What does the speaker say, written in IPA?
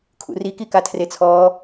kʰ ṵ r i k i k a tʰ r e t͡sʰ ɔː

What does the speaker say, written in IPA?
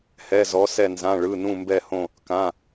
h ɛ˧˥˧ z ɔ˧˥ s ɛ˥˧ n z ã˧˥˧ ɭ ɯ˧˥˧ n ũ˥˧ m b ɛ˥˧ h õ˥˧ | k ã˧˥˧

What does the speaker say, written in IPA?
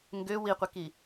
ŋ ɡ ø w i qʷ ɛ k i

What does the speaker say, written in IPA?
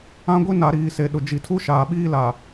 ã˦ ɡʷ i˦ n a˨ ɾ iː˨ s e˨ ɗ ʊ˨ d͡ʒ i˨ tʰ u˦ ʃ aː˨ ɓ iː˦ l a˨

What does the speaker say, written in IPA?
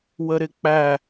w ə ɾ ɪ k͡p æ

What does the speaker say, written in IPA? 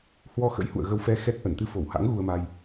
h w ɔ˧ x ə̰˧˥ j h ṵ˧˨ ə̯ ɣ ə˧ w f ɛ˧ x ɛ˦˥ k̚ ʔ ə˧˩ n t̪ ɨ˧ f o˧˩ w h a̰˧˥ ŋ ɣ u˧ ə̯ m a˧ j

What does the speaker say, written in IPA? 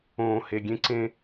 õː˨ h e˨ ɡʲ ẽ˦ ǀ ẽ˦

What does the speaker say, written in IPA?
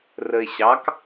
r ə ɪ̯ ɕ ɑ k

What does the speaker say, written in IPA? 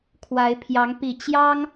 kʰ w a˨˦ ɪ̯ pʰ j ɑ˨˦ ŋ p i˨˩ t͡ɕ j ɑ˦ ŋ

